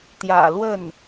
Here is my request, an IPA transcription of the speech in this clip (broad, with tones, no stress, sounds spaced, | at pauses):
t̪ j ä̰˨˩ l w ə˥˩ n